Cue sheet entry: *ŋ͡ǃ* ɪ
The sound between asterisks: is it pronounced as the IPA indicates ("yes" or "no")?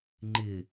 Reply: yes